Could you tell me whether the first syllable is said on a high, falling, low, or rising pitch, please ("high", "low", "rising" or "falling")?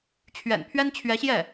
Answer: low